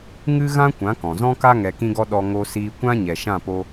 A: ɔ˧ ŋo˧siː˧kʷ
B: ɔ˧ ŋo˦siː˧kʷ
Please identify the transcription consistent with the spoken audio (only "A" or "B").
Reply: A